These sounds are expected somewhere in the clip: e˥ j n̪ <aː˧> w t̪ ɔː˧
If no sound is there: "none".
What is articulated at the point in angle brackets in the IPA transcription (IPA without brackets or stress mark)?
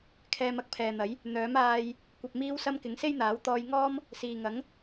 aː˨˥